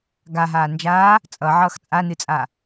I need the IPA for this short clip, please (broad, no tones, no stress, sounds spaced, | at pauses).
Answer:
ɡ a ɦ aː n d͡ʒ aː | t͡sʼ ʌ ʕ ʌː x t͡sʼ a n ɨ t͡sʼ a